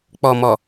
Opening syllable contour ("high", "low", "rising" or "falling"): low